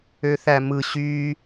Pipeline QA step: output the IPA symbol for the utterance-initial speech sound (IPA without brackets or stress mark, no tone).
ø